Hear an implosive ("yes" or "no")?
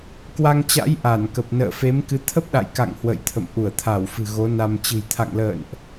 yes